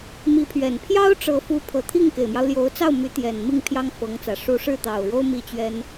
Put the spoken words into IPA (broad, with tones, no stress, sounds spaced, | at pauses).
m i˧˥ pʰ ɥ ɛ˨˩ n pʰ j ɑ˥ ʊ̯ ʈ͡ʂ ɤ˧˥ f u˧˥ pʰ ɤ˨˩ t̪ʰ i˥˩ ŋ k e˨˩ ɪ̯ m j ɑ˦ ʊ̯ l j o˧˥ ʊ̯ t͡s ɑ˥˩ ʊ̯ m y˧˥ t̪ j ɛ˨˩ n m i˥˩ ŋ pʰ j ɑ˥ ŋ f ɤ˧˥ ŋ t͡s ä˨˩ ʂ u˧˥ ʂ ɻ̩˥˩ t̪ ɑ˨˩ ʊ̯ ɻ o˥ ʊ̯ m i˥˩ t͡ɕ ɥ ɛ˥ n